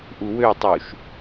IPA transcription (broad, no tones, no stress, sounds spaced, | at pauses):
ʔ u w ø tˤ u ʃ